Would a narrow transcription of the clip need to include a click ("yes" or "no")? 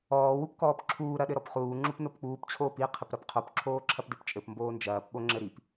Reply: yes